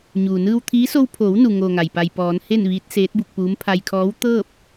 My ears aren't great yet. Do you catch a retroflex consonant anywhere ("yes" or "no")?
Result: no